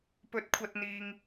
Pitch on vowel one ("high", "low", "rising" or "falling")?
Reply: rising